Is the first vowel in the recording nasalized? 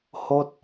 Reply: no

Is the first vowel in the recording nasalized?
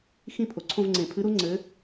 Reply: yes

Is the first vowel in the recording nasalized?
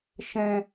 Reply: yes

